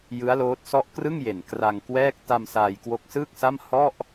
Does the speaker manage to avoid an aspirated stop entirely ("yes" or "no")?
yes